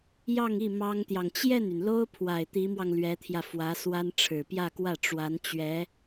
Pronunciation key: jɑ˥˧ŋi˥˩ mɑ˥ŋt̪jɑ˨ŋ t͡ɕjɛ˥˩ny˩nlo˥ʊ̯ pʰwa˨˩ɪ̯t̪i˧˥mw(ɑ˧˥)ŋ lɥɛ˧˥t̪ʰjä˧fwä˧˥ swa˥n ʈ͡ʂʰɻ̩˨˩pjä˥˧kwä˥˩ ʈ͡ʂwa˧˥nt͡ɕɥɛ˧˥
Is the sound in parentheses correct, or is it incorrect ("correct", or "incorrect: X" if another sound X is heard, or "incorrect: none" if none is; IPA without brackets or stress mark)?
incorrect: ɑ˧